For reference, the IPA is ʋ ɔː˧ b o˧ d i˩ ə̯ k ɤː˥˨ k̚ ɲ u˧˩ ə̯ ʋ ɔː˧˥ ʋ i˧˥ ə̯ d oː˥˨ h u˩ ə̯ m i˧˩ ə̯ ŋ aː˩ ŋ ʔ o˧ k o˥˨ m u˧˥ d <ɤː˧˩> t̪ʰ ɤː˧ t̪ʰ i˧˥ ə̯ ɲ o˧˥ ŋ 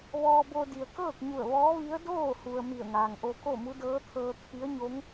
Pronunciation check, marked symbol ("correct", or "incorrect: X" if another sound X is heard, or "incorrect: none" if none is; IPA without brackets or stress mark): incorrect: ɤː˧˥